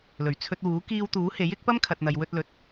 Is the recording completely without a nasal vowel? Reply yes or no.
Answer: yes